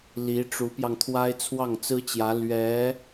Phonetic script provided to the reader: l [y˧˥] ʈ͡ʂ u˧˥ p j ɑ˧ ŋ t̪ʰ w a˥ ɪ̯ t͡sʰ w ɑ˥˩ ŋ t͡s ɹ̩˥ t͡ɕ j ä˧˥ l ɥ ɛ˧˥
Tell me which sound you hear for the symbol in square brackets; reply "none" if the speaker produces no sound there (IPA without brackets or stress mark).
i˧˥